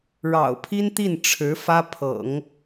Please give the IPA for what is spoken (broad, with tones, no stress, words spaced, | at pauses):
ɻɑ̰˨˩ʊ̯pʰi˥nt̪i˥˩n ʈ͡ʂʰɻ̩˧˥ fä˥pʰɤ̰˨˩˦ŋ